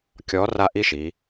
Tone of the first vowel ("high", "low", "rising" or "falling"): rising